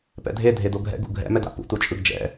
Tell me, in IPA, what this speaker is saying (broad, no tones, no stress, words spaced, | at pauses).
pɛ̰dʱe dʱedoɡʱɛ̰ ɡṵɡʱɛ̰ mɛda̰pṵ tut͡ʃʼɯɡd͡ʒɛ̰